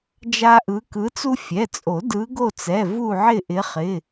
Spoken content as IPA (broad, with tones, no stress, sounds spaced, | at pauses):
d͡ʒ a˦ ʔ ɯ˨˦ k ɯ˨˦ t͡s u˦ fʲ ɛ˩˧˩ t͡sʼ o˨˩˦ d ɯ˨˦ ɡ o˦˨ t͡s ɛ˩˧˩ v u˦˨ ʕ ɪ˦˨ ʔ ɪ˨˦ χ ɪ˩˧˩